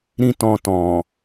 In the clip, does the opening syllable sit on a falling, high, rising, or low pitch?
high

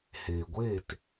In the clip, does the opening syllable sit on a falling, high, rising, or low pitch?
low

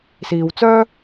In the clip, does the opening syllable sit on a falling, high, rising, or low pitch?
low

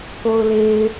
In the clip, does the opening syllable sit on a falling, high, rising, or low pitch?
high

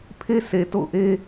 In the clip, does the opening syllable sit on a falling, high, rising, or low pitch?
high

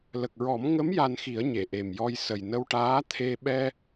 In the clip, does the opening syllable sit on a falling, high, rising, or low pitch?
low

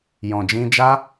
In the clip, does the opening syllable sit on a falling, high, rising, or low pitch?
low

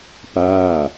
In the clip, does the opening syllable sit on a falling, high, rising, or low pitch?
falling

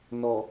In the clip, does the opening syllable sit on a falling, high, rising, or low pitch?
low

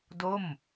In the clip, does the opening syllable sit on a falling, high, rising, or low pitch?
falling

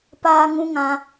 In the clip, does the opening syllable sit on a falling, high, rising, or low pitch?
high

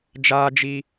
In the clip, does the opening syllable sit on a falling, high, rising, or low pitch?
high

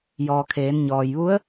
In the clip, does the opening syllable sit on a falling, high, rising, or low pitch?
low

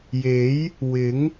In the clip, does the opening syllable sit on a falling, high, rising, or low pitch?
rising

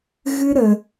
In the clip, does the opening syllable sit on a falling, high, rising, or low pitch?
high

